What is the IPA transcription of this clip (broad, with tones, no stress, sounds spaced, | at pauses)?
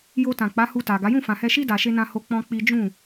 j o˧ t ã˨ k͡p a˨˦ h u˧ t a˨ ɡ a˨˦ j ũ˦˨ f ã˨ h ɛ˧ ʃ i˦ d a˧ ʃ e˦ n ã˦ h o˧ k͡p ɔ̃˦ k͡p i˦ d͡ʒ ũ˦˨